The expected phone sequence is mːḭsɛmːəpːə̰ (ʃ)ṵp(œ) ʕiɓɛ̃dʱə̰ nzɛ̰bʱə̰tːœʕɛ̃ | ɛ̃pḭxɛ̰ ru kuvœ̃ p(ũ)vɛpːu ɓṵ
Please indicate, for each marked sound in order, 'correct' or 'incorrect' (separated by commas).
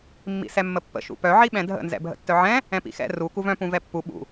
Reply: correct, correct, correct